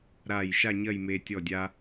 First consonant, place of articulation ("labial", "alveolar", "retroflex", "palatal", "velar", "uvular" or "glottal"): alveolar